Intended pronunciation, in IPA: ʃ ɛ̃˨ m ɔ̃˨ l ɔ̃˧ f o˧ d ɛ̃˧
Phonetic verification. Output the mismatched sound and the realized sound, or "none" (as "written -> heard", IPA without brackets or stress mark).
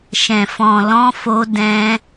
m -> f